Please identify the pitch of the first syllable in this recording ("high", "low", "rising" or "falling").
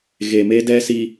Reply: low